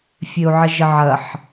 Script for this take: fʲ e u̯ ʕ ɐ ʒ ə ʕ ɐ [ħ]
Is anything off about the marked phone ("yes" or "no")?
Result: no